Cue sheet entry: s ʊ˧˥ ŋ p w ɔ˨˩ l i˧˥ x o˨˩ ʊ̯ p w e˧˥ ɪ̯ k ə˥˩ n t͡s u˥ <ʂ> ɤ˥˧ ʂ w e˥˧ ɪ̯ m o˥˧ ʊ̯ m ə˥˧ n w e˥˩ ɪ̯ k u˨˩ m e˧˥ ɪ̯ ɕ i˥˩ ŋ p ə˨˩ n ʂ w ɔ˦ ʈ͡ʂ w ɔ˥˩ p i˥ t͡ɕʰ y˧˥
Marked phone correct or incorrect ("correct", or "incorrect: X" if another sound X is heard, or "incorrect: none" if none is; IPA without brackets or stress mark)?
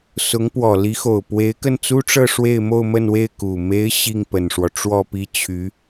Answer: incorrect: ʈ͡ʂ